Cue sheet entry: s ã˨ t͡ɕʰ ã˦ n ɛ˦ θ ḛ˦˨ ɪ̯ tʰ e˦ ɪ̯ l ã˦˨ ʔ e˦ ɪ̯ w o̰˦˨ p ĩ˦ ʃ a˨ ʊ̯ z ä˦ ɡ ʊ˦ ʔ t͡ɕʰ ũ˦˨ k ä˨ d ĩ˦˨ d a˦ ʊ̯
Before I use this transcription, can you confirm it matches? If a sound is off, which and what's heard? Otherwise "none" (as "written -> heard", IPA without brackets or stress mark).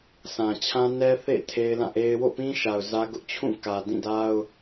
none